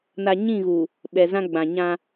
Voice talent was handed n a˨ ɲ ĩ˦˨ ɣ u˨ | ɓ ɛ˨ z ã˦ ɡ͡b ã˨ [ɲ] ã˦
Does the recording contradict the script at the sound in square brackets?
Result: no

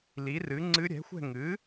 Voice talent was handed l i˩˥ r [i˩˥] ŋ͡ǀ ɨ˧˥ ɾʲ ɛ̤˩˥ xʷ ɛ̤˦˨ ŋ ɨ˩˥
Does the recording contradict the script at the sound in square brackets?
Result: yes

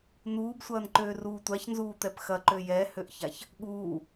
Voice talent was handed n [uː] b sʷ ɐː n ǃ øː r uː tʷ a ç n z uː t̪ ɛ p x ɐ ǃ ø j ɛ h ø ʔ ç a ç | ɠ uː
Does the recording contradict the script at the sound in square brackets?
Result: no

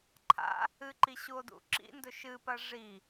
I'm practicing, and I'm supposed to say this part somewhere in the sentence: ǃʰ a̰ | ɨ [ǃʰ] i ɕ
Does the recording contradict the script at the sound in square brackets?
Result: yes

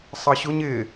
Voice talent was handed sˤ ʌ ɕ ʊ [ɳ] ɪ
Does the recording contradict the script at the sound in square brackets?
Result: yes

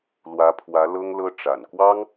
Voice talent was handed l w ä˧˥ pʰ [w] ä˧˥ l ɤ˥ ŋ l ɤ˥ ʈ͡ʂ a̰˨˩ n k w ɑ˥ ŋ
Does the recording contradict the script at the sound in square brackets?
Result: no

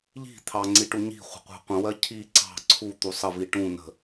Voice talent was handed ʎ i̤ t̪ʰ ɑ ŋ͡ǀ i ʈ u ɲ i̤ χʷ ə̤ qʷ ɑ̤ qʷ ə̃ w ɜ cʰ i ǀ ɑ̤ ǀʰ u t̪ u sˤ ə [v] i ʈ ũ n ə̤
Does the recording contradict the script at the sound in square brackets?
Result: no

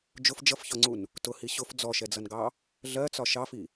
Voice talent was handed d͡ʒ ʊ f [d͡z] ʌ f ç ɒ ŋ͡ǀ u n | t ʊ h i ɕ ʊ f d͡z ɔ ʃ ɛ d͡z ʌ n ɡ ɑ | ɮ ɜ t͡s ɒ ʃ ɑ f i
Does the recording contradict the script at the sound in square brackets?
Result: yes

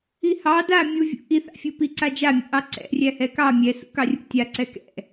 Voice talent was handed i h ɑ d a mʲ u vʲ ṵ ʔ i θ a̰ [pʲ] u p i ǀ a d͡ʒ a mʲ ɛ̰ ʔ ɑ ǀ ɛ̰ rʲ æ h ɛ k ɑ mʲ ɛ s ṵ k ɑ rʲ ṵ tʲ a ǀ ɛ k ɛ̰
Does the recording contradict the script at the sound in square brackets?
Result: yes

